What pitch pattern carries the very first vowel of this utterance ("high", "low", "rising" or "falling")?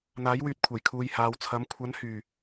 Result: rising